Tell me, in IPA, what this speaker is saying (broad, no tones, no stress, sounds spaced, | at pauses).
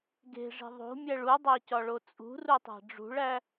ɡ e̤ ʐ i̤ ðˤ o̤ mʲ æ ɭ u dˤ æ c ɒ ɭ o t͡sʼ ṳ r u tˤ æ̤ ɖ͡ʐ ṳ ɭ æ